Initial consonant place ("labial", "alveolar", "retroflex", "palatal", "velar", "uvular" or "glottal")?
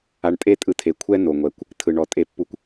retroflex